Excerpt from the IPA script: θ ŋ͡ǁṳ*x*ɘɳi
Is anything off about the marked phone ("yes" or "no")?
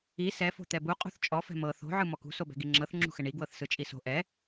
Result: no